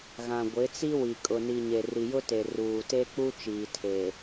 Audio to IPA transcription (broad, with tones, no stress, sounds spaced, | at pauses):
ɣ ã˨ ɡʷ ɪ˨˦ t͡s i˦ w i˨ kʼ ʊ˨ n i˨ ɲ e˨ r i˨ j ʊ˦ t e˨ r uː˨ t e˦ k͡p u˦ t͡ʃ iː˨ tʰ e˨